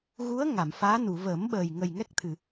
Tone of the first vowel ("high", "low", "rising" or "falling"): rising